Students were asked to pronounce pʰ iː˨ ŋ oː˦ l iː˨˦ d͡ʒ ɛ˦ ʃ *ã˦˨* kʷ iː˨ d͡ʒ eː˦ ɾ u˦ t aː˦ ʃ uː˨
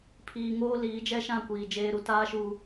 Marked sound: correct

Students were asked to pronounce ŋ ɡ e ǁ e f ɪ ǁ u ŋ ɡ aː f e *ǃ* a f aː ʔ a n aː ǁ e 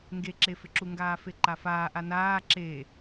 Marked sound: correct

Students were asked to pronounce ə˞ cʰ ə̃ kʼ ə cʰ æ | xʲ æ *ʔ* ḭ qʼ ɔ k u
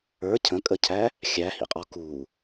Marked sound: incorrect: h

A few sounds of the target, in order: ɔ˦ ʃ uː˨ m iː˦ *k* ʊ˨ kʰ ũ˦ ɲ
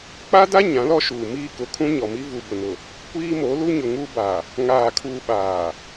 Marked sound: correct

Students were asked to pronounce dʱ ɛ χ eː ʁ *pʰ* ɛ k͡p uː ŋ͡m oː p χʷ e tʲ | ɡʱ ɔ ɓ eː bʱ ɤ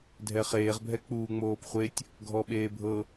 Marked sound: incorrect: bʱ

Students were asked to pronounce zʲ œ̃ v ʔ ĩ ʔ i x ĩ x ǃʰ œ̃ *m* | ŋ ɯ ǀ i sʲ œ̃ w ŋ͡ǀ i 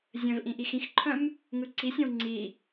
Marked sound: correct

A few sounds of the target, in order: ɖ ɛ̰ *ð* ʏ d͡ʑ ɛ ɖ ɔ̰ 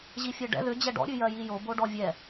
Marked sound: correct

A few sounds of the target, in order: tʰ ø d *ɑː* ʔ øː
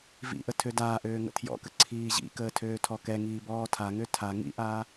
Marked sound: incorrect: aː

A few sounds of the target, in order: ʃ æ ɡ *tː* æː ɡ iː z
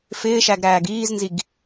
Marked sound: incorrect: ɾ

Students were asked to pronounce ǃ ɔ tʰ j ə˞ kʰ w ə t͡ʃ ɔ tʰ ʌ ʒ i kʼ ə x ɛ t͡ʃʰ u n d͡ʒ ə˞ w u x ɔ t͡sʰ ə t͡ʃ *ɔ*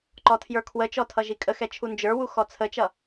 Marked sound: incorrect: ʌ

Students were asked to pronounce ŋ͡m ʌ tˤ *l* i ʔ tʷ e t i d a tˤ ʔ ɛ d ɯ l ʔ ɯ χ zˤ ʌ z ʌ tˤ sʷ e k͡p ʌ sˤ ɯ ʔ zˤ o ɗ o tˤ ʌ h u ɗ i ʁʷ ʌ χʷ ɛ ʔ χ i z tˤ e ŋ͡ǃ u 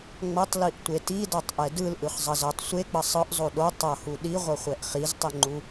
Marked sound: correct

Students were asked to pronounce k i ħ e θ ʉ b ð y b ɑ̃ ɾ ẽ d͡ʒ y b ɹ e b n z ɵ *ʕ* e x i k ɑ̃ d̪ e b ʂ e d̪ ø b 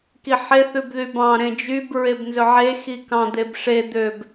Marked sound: correct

